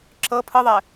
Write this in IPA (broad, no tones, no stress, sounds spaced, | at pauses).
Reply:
ǁ ɤ pʰ ɯ ðˤ ɛ